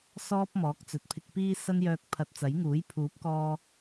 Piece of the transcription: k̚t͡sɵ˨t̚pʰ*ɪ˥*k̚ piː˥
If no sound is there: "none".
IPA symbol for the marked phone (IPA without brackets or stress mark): ɪ˧